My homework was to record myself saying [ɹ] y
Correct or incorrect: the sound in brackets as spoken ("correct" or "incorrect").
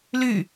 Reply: incorrect